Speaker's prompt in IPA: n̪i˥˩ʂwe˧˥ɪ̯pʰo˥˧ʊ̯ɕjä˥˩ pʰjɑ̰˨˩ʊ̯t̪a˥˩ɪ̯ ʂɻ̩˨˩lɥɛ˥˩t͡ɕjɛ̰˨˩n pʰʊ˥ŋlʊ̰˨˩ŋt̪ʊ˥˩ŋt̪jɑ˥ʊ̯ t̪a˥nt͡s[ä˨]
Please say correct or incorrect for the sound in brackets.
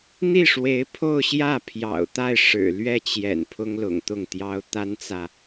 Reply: correct